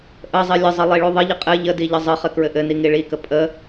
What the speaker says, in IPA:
ʔəzˤɘ lʲəzˤɘ lˠiɭuðˤəʎə qʼɘ ʎədi ʎəzˤəχɘ kɹɘʔɘni ŋiɭikə pʼə

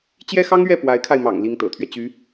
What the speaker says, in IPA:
t͡ɕjɛ˥xɑ˥ŋɥɛ˥˩ pwa˧˥ɪ̯kʰa˧ɪ̯mɑ̰˨˩ŋ li˥ŋt̪ɤ̰˨˩t̪ʰɥɛ˦ t͡ɕy˧˥

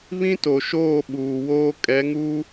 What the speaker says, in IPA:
βĩ˦to˨ʃoː˦˨ ɓuː˨woː˦ kʼɛ˨˦ŋuː˦

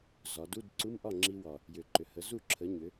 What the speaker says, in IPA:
zɒ˩˧du˧˥˧dǀu˧˥˧m ʔɒ˥˩ŋ͡ǁi˧wɒ˨˩ | jʏ˨˩ǃʏ˩˧hə˩˥ zu˥˩ǁʰə˩˥ ɲʏ˩˧

